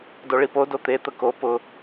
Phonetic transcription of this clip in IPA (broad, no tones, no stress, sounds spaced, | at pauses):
d o ɭ i p o d o t̪ e t̪ ə k o p ʊ